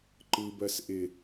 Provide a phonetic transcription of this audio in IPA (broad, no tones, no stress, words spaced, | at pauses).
ǃɯbɜs ʔɪ